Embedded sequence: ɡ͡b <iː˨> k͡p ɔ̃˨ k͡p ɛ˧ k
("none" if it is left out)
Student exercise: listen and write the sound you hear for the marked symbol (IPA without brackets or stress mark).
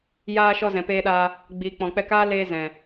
iː˨